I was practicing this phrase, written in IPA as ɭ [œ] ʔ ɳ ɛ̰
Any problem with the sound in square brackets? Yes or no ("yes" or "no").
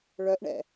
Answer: no